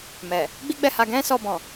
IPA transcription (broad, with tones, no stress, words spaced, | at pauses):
mɛ˨ | ɡ͡bi˦ɡ͡bɛ˦˨ha˧ ɡɛ̃˦sɔ˧bɔ̃˨